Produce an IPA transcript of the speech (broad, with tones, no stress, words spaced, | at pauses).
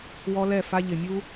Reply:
wɔ˧lɛ˦˨ fa˧ ʎɪ˨mʲu˦